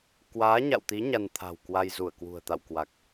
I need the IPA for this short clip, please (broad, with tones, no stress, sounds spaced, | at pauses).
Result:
k w aː˨˦ ɲ a̰˧˨ w t̪ i˨˦ ɲ a˧ n t̪ʰ a̤˨˩ w k w a˧ j z u˧˩ ə̯ k w ṳ˨˩ ə̯ t̪ a̰˧˨ w k w a˨˩ k̚